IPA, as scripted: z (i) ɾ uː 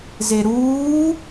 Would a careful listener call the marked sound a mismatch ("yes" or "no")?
yes